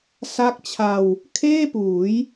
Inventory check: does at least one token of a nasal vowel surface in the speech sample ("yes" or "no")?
no